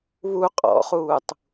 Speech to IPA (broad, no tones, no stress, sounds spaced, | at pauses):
β u qʼ ɔ̰ χ uː tˤ